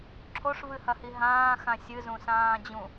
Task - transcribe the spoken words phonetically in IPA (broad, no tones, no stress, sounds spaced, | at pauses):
ǁʰ o ʂ v ɨ h ɐ h i ɦ ãː x ã sʲ ɨ z ũ s ãː d͡ʑ ũ